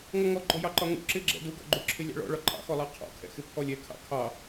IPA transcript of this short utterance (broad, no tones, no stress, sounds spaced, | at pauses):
ŋ ɔ ŋ ɔ ɡ͡ǃ ɔ j ɑ ǃ ɒ ŋ ṵ ǁ ɪ ɡ͡ǁ ɛ̰ d u ɡ ɔ̰ ɡ͡ǃ u ǁʰ ɪ lʲ ɑ̰ ɭ ɔ̰ ɭ ɒ ǃʼ ɑ̰ x ɔ lˠ ɑ qʰ ɔ̰ kʰ ɛ̰ x ɪ pʰ ɔ lʲ ɛ kʰ ɑ̰ kʰ ɑ